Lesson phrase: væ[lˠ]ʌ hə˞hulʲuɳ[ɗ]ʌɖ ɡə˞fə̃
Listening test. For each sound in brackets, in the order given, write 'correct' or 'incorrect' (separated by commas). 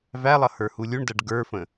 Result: correct, incorrect